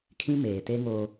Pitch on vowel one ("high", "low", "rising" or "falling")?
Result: high